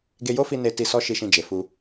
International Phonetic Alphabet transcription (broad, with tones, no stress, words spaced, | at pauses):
ɡe˧jo˦fi˧ ne˧ti˧ sɔ˦ʃi˧ʃĩ˧d͡ʒe˨ fu˧